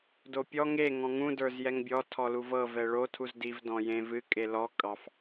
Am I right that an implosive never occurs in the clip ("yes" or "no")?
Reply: yes